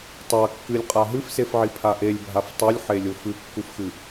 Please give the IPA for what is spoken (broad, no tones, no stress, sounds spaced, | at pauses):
tˤ a kː ɨ lʲ qʼ a ɦ ɨ f s e f ʕ i pʰ a ʔ e lʲ bʱ a f tˤ u lʲ ħ e lʲ o f ɨ kː u f x ɨ